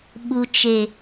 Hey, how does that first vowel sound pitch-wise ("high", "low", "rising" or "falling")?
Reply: low